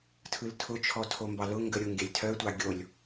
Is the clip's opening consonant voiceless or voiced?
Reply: voiceless